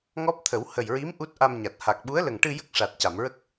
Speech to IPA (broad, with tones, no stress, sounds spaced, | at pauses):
ŋ ɔ˦˥ p̚ t̪ʰ ə˨˩˦ w h ə˨˩ j ɹ i˧˥ m ʔ u˦˥ t̚ ʔ a˧ m ɲ a˨˩ t̚ h a˨˩ k̚ ɓ u˧˥ ə̯ l ə˨˩ ŋ ʈ ɨ˧ j ə˦˥ k̚ ʂ a˨˩ t̚ c a˨˩˨ m ɹ ə˦˥ k̚